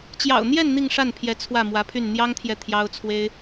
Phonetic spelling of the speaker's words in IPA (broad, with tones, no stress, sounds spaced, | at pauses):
t͡ɕ j ɑ̰˨˩ ʊ̯ n̪ j ɛ˥˧ n n̪ i˥˧ ŋ ʂ a˥˩ n pʰ j ɛ˧˥ t͡sʰ w ä˥˩ m w ä˧˥ pʰ y˥˩ n n̪ j ɑ˥ ŋ t̪ʰ j ɛ˨ t̪ʰ j ɑ˥ ʊ̯ t͡sʰ w e˥ ɪ̯